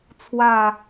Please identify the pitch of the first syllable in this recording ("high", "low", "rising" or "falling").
falling